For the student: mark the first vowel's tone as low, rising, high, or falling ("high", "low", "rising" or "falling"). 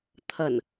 low